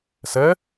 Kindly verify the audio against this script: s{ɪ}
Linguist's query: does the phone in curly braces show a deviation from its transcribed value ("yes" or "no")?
yes